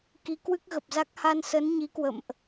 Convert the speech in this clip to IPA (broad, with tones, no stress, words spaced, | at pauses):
ki˨˦kwɨ˦˥k̚ɣə˨˩p̚za˦˥k̚ ha˧nsə˨˦n ɲi˨˦kwə̰˧˨mʔ